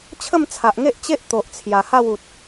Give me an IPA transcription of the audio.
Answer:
t͡ɕʰə˥˧mt͡sʰa˨ʔŋe˦ʔ t͡ɕe˦ʔ t̪o˨ʔt͡sʰja˨˩ha˥˧wu˨t̚

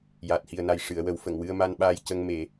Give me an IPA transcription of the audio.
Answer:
jaː˨˩t̚hi˨˩ə̯na˨˩j ʂɨ˨˩˨ə̯wə˨˩˦w fə˨˩˨ŋwɨ˧ə̯ma˧nɓaː˧j cə˧ŋme˨˩˦

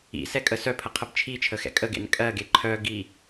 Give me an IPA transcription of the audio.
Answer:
ḭ sɛkʼəsœpʰə qʰəbt͡ʃʰit͡ʃʰə xɛ̰kʼəɡḛn kʼɜɡe ǃʰœ ɡi

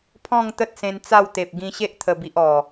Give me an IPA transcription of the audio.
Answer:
pʰɔ̃˥˧ŋ t̪ə˦t̚sẽ˧nt͡sa˥˧wt̪e˨p̚ ɡĩ˧ɕe˦ʔt̪ʰə˨˩bi˨ʔ ɔ˨˩

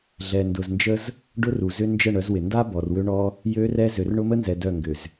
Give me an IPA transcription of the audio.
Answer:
ɮɛ˨ndʊ˨znd͡ʒə˦z | ɖʊ˦ru˨ zʏ˦ nd͡ʒə˦˨ ɳœ˨˦zwɪ˨ nda˦ bɔ˨rwʏ˦ɳɔ˦ | jø˦rɛ˦ zø˨rɳʊ˦mə˦nzɛ˨ dœ˦˨ŋɡʏ˨z

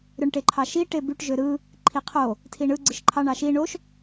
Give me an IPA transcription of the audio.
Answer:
ɾøɳʈeǃʰɑʃi ʈebyʈ ʒøɾɯ | ǃʰiqʰo | tʰiɳɯ ɡ͡ǀɯʃǃʰɑ ɳɑʃi ɳoʃ

